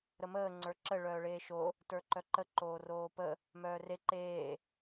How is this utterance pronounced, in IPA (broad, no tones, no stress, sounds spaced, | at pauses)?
ɾ ə m əː ŋ͡ǀ ə˞ ǁ ə ɭ œː ɭ eː ʃ o | t ə˞ ǃ œ ǃ ə ǃ oː r oː p ə | m œː r e ǃ eː